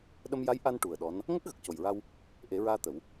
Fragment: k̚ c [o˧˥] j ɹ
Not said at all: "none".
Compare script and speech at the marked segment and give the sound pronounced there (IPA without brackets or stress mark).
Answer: o˨˩